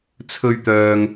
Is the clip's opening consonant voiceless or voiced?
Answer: voiceless